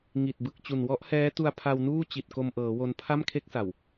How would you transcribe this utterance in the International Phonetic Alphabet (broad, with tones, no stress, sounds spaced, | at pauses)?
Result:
ŋ i˨˩ t̚ b ɯ˨˩ k̚ t͡ɕ u˨˩ n w ɔ˦˥ ʔ h ɛː˦˥ t u˧ a̯ pʰ a˧ w n uː˥˩ t͡ɕ i˨˩ t̚ k o˧ m ʔ ɤː˩˦ w o˧ n pʰ a˥˩ m kʰ e˥˩ k̚ s a˨˩ w